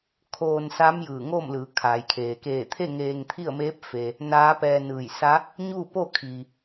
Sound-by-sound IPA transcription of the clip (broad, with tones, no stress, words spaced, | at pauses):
kʰoː˧nsa˧˥m jɯː˧˩ŋo˥˨mlɯː˩˧ kʰa˩jkʰeː˩ keː˧˩t̪ʰe˥˨ ŋeː˧ŋt̪ʰi˥˨ə̯meː˧˥p̚fe˩ | naː˧˥pɛː˧ nɯː˧˩jsa˧˥ | ɲuː˥˨po˥˨ kʰiː˩